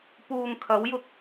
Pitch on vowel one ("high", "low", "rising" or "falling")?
low